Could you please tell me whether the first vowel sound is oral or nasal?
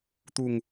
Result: oral